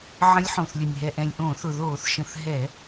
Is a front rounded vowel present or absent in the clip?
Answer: absent